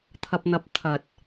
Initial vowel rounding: unrounded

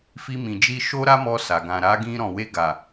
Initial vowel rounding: unrounded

